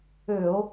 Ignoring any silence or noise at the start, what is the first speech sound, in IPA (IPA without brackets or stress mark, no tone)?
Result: ø